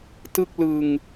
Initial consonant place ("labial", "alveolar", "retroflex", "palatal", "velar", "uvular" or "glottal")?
alveolar